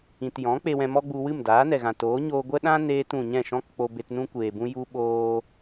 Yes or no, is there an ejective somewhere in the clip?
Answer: no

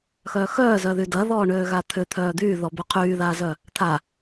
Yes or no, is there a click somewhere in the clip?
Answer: no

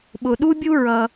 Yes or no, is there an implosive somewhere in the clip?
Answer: yes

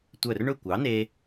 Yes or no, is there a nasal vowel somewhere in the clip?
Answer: no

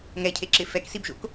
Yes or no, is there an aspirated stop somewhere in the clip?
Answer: yes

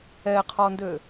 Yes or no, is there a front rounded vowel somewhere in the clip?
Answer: yes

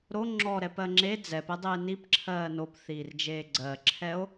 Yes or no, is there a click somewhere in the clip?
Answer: yes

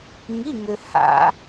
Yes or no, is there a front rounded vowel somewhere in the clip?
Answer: yes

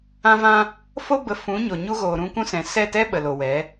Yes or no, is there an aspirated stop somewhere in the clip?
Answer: no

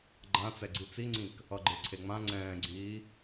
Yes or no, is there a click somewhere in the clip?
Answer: yes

